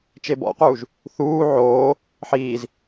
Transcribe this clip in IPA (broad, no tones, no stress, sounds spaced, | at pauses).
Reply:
t͡ʃ e b ɔ̰ q uː ʒ | θ uː ʕ oː | ħ iː z